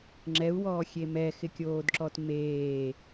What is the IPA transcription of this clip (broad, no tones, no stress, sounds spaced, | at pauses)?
ŋ͡ǁ ɛ u̯ w ɔː xʲ e m ɛ x ɪ kʲ oː d ǁ ɔ t m eː